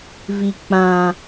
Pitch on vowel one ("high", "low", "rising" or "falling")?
low